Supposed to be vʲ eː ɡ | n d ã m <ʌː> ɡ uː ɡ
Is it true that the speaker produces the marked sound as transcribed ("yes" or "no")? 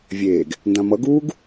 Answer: no